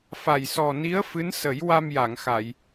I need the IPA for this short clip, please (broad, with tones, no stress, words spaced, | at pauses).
fa˨˩jsɔ˨˩ni˧˥ə̯ fɨ˧˥nsə˨˩˦j wa˧mja˨˩˨ŋxa˨˩˨j